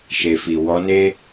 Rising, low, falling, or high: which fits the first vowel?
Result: low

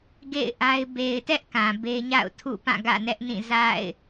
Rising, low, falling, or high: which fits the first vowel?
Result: falling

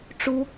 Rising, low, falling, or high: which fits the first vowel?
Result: high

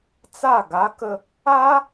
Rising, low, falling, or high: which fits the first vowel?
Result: falling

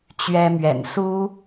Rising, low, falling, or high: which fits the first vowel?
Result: high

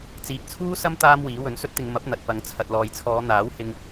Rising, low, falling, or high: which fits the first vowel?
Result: low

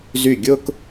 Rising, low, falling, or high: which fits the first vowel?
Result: falling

